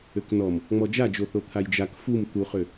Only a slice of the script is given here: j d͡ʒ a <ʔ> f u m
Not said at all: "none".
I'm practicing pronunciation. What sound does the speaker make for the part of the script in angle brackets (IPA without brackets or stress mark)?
k